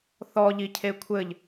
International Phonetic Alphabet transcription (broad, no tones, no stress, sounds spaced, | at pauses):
θ ɔ ʎ i cʰ e kʷʰ ɘ ʎ